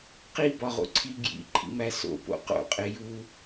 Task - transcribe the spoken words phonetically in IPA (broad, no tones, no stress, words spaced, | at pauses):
qi bɒʁo̰ǀʰi ɡjḭ ǃʰḭmæso̰ po̰qo̰ qʼeju